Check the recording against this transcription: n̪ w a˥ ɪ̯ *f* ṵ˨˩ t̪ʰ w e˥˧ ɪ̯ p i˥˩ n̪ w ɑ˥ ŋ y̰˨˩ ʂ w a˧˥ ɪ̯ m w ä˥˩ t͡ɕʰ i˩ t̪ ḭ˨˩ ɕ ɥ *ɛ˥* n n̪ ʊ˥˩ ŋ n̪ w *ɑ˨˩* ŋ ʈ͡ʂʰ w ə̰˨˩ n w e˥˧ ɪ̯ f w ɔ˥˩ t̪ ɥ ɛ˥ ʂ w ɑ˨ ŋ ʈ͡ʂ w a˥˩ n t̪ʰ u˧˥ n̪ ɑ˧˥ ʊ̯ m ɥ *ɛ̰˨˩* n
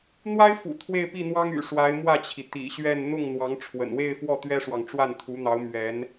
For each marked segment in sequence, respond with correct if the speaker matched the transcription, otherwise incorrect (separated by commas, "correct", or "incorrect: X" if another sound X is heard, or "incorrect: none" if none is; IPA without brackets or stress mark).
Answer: correct, incorrect: ɛ˥˧, incorrect: ɑ˧˥, incorrect: ɛ˧˥